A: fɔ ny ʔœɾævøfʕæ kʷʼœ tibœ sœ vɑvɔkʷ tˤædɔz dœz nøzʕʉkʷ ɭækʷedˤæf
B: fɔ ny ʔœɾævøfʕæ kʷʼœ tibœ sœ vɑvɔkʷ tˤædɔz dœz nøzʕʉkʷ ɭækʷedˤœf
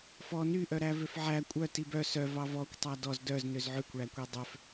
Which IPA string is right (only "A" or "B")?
B